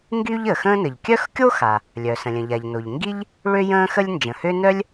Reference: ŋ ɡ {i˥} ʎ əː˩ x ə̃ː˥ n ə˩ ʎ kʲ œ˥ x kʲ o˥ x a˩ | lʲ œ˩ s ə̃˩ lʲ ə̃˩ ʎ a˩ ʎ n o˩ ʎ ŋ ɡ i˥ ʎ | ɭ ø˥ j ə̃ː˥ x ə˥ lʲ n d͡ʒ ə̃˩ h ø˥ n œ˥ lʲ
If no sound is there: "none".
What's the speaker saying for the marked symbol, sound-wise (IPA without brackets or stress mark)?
y˥